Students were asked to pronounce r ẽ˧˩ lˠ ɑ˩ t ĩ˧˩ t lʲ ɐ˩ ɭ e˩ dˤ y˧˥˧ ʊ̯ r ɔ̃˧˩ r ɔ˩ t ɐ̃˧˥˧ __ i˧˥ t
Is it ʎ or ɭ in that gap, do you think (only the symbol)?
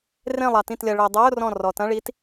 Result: ɭ